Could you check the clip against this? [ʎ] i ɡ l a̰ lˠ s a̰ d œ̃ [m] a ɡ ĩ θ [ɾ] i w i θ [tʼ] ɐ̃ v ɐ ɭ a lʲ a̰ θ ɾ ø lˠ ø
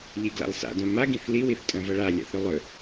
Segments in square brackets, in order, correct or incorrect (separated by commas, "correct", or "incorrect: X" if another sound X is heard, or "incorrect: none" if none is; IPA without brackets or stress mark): correct, correct, incorrect: l, correct